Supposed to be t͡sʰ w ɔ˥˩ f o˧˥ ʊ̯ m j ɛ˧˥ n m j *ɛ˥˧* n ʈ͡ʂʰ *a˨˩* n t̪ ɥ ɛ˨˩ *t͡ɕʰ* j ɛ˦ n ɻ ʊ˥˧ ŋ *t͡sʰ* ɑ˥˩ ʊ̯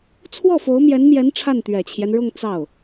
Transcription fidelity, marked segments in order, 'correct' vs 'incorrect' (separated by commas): incorrect, incorrect, correct, incorrect